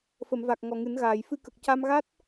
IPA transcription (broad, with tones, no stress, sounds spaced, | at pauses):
f ə˨˩˨ m v a˨˩ k̚ ŋ ɔ˨˩ ŋ ɨ˨˩˦ n ɣ aː˨˩˨ j f ɨ˧ k ə˨˩ k̚ c a˧ m ɣ a˦˥ t̚